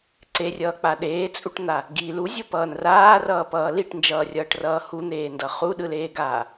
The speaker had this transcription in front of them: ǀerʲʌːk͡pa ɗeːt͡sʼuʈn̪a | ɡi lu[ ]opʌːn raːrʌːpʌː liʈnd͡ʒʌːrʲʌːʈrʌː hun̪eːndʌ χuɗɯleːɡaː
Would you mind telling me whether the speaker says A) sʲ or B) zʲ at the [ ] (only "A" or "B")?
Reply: B